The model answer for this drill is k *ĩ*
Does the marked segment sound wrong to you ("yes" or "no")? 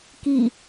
yes